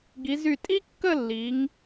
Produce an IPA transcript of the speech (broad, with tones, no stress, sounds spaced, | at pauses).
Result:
ɡ i˩˧ z y˧˩ tʼ i˥ kː ə˥˧ lː i˩˧ ŋ